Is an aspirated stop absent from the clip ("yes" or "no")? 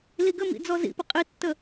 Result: yes